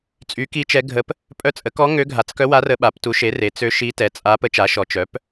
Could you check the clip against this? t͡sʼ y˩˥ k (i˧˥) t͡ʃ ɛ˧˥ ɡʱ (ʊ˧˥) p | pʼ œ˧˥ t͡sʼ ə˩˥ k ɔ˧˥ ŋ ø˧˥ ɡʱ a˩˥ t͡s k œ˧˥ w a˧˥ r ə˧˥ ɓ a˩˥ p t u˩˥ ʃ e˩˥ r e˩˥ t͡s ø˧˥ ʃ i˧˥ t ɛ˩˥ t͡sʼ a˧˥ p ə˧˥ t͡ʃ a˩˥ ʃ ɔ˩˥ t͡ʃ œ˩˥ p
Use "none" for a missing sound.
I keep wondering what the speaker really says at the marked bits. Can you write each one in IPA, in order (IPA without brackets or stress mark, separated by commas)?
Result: i˧˥, ə˧˥